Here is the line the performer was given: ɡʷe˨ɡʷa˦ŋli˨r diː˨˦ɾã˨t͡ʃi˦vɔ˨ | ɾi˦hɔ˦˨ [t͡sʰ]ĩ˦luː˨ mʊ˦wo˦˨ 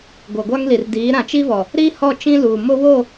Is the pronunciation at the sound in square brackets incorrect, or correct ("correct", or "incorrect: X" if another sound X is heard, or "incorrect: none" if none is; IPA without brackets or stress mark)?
incorrect: t͡ʃ